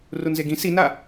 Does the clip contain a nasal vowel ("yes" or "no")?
yes